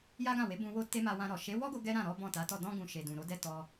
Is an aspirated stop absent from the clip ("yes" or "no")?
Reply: yes